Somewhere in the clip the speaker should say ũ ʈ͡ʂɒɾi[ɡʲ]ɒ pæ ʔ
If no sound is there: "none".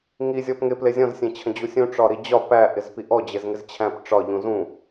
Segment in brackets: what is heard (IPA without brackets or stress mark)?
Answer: d͡ʑ